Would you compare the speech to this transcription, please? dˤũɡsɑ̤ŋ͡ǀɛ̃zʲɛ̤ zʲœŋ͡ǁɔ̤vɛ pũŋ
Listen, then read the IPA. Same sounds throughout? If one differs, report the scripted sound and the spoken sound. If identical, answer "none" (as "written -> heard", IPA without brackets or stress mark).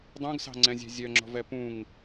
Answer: none